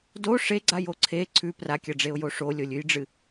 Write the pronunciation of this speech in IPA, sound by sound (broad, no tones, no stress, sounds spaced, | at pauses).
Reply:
d o ʂ e ɡ͡ǀ a j o ǀʰ e ǀʰ ʉ p r a kʲ ɐ ɖ͡ʐ e ʊ̯ j o ʂ o lʲ o lʲ ʉ j ɖ͡ʐ ɨ